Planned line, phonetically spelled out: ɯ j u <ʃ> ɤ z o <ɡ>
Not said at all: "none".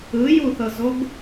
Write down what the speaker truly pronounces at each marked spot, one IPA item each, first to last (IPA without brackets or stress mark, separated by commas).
θ, ɡ